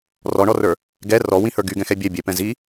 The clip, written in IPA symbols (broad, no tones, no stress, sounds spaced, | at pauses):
r ɔ ɳ ɔ r ə˞ | ɡ ɛ r ɔ w ĩ h ə˞ ɡ y ɡ ɛ̃ x ɛ bʲ ɛ bʲ ɛ p ɛ̃ z i